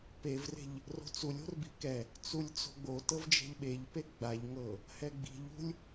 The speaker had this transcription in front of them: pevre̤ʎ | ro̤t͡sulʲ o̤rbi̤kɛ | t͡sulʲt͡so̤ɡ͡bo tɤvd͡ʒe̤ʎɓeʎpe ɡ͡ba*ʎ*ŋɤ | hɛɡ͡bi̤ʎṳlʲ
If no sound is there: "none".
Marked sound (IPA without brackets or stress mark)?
ʎ